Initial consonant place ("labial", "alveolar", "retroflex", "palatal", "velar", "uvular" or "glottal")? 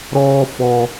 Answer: alveolar